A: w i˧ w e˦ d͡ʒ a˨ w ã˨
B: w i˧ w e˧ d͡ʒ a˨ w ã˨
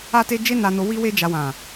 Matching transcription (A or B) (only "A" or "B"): B